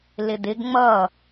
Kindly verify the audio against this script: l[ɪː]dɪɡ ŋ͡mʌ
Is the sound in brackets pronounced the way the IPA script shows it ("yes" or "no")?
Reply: no